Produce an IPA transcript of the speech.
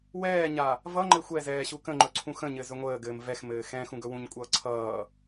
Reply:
wɛːɲa | vʌŋ͡ǃɘ xʷɛzɛː ɕukə̃ŋ͡ǃɵ ǀʰũxə̃ɲɘ zɵŋʷəːɡɘːm vɛxmɘː xɛ̃ xũɡɵwũɲkʷʼʌː ǀʰʌː

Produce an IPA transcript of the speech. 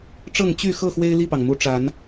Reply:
ʈ͡ʂɤ˥˨ŋ t͡ɕy˥˨ xɤ˥˨xwe˦ɪ̯ li˥˨pɑ˩ŋmu˨˦ ʈ͡ʂa˨˦n

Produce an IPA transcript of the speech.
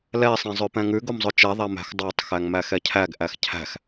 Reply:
lɛ sˤẽzˤøpɛ̃ŋʉɡ omzˤɵt͡ʃɛ ðˤæmæ̤xdˤɑtˤ xæŋmæxɛcʰæɡ ʔæxcʰæ̤x

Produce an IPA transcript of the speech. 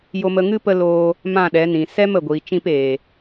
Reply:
jo˧mə˧ŋɨ˦pə˧ loː˧ | mã˦˨ɗɛ˨˦ nĩ˨sɛ˦m ə˨ɡʷiː˨t͡ʃĩ˧p eː˨

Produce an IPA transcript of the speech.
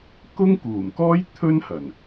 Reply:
kʊ˥ŋkuː˨˩mkɔː˥j t̪ʰɵ˥nhɐ˨˩n

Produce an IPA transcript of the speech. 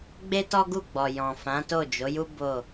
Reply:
ɡ͡be˦tɔ˦ɡu˦˨ɡ͡bɔ˨ jɔ̃˨fã˨˦to˦˨ d͡ʒo˨˦ju˦ bo˦˨

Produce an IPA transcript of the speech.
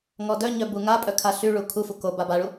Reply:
ŋɔdœɲœ buŋapʼœ kʰaɬyɭu kʰufu ko babaɭu

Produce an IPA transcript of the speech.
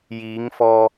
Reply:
jiː˨˧ŋ fɔː˧

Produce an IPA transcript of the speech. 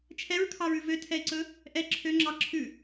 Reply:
t͡ʃʰɛɹkʰɑɹʉ vøtʰɛɪ̯ǀɵ | ʔɛ ǁʰøŋ͡ǁɑ ǁʰʉ

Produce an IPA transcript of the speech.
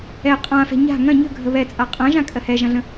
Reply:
ɛ qʼãfɛ̤ ɲa̤ ŋɐ̃ ɲə̤ɡʱə βɛt͡sʼa qʼɐ̃ʒãkʼɜ hɛʒɐ̃ɮə̃

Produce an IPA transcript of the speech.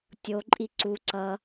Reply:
tʲo ǃʼiǀu ǀʌ

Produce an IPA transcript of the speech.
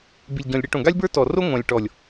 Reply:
bi˨lʲɟɔ̃˨lʲ ɽi˧ʈõ˨ ɡa˦lʲbə˞˦tɔ˨ro˦ ŋʷã˨lʲ ʈɔ˨lʲ

